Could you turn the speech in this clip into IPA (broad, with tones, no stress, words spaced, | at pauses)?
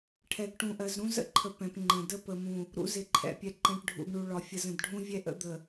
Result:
ʈʰɛ˨ɡʈũ˨ʔɜ˨zɾũ˦ zə̰˦ǃʰə˨ pɛ̃˨p ŋ͡ǃə̃˨də˦ pə˨mũ˨ | ɾṵ˦zɪ˨ǃʰɛ̰˨pʲɛ˨ ǃɛ̃˨ʈɖʱṵ˨ɡɳu˨ɭɒ˨ fʲə˨zə̃˨dɖʱũ˦ vʲɛ˦ʔə̰˦ d̪ə˨